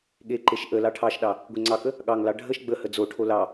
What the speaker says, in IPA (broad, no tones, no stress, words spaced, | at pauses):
ɠeǃeʃ ʔə lɑʈʰɑʃɗɑ | ɡʷeŋ͡ǀɑkə | ɠɑŋlɑ ɖʱəʃ ɡ͡bəhə d͡zoʈʰo lɑ